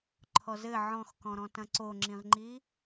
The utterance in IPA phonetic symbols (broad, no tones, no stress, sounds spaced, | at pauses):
ǃʰ ɔ z ɘ ʕ ɔ̃ x k ɔ̃ ɾ ɔ̃ t ɐ̃ ǀ o ŋ͡ǁ ĩ ʁ ŋ͡ǃ i